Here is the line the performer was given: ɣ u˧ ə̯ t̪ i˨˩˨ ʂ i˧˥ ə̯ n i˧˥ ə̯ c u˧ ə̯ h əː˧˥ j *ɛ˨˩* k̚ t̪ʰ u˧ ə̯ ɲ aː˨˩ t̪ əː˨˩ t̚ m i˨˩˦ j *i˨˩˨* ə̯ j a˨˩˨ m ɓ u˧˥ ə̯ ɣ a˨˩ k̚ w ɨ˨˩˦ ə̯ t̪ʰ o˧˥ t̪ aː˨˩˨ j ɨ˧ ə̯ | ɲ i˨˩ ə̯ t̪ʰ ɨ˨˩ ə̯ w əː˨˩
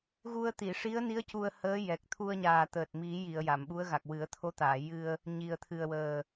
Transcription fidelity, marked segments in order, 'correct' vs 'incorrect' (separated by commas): correct, correct